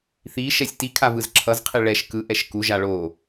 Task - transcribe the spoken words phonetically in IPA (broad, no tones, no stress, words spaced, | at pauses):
θiʃɛsʲ tikʰavɯz ǁʰʌzqʰi ɭɛʃ kɯʔɛʃ kuʒa ɭo